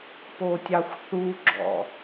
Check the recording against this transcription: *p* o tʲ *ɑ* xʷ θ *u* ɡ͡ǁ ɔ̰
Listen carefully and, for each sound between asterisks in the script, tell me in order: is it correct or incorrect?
correct, correct, correct

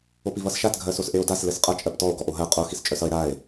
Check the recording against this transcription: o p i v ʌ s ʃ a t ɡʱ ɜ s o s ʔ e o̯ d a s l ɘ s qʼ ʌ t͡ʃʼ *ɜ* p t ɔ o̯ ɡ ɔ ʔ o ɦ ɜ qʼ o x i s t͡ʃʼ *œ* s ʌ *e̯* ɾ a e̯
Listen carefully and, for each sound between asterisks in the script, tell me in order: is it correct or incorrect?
correct, correct, correct

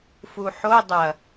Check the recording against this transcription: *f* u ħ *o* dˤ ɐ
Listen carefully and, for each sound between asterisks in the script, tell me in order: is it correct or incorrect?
correct, correct

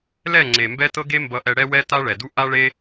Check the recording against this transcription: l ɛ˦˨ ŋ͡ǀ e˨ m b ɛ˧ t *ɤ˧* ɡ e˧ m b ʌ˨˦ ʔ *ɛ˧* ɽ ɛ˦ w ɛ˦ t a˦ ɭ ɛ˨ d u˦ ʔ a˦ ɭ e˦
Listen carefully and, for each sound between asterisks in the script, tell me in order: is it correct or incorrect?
correct, correct

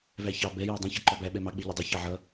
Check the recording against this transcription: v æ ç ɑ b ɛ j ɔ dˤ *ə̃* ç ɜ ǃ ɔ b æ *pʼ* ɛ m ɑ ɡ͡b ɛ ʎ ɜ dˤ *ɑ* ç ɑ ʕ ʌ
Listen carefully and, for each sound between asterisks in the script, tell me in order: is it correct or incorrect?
correct, incorrect, incorrect

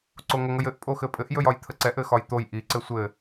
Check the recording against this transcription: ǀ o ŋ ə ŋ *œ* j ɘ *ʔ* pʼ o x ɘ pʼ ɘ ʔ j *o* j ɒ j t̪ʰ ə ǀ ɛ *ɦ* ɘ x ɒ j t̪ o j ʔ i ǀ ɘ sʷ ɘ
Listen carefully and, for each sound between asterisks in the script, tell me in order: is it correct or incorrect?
incorrect, correct, incorrect, incorrect

